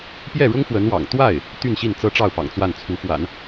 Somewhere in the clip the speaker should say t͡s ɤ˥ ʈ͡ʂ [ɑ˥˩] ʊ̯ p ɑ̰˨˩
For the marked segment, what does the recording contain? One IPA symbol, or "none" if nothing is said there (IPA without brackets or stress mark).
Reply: ɑ˥˩